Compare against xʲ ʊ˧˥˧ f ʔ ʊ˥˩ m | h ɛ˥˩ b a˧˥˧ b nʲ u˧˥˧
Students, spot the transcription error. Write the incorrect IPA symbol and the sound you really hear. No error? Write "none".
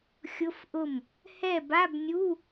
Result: none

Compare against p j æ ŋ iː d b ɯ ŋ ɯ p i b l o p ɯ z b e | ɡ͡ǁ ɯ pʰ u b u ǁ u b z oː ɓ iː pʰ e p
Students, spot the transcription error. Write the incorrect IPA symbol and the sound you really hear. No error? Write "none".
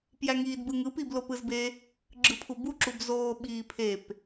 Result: none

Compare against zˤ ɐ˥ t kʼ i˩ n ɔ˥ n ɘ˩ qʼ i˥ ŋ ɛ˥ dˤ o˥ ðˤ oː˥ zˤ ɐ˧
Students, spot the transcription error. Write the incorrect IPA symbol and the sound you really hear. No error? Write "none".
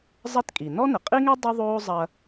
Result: none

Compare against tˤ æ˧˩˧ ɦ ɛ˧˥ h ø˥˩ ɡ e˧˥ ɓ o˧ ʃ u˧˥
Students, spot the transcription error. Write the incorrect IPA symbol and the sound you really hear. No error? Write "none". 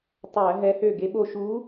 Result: none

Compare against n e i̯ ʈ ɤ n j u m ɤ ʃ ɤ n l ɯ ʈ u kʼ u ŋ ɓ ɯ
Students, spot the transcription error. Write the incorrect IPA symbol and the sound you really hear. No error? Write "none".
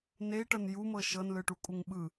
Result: none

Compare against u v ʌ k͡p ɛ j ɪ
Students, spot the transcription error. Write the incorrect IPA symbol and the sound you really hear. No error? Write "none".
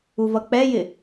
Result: none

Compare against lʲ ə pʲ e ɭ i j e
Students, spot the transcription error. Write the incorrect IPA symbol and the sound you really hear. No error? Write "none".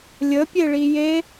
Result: none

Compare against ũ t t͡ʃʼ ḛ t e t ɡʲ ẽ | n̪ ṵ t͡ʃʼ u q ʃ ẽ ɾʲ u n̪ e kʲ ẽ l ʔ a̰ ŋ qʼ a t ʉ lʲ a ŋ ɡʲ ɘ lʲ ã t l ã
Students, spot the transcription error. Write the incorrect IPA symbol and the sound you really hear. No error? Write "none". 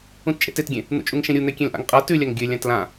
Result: q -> ŋ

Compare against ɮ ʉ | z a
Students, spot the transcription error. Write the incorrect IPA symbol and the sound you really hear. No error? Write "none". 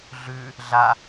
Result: z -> ɮ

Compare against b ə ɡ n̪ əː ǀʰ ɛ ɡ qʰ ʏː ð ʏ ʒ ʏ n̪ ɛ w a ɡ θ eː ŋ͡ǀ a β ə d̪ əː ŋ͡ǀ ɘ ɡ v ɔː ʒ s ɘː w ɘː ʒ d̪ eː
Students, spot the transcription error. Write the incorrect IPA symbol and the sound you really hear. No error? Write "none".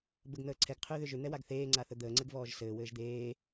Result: β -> θ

